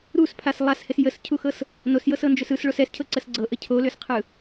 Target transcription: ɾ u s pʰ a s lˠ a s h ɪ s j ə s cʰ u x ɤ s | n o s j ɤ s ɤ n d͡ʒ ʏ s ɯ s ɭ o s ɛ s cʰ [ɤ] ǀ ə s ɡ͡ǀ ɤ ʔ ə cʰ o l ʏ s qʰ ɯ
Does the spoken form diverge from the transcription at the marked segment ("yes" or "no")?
no